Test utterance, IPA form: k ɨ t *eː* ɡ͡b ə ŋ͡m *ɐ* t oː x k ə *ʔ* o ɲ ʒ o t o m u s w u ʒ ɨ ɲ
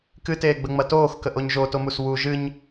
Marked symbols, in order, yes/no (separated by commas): yes, yes, yes